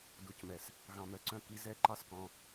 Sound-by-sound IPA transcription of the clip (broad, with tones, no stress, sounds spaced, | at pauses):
d u˨ c m ɛ˨ s | ɣ ɑ̃˨ m œ˨ ǀ œ̃˦ k i˧ z ɛ˦ ǃ ɑ˦ s k ɔ̃˧